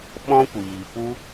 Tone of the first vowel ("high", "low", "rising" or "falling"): high